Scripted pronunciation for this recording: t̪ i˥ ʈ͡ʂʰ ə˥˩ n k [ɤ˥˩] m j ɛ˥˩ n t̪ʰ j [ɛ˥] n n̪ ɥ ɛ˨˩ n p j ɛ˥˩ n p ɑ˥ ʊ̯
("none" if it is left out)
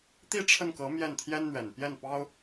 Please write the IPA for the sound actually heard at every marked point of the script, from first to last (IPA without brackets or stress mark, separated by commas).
ɤ˧˥, ɛ˥